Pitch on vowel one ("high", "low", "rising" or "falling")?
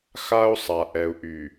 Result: high